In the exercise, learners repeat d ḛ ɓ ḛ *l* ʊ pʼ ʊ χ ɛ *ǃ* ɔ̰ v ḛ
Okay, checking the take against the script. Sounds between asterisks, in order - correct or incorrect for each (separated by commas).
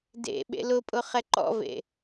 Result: correct, correct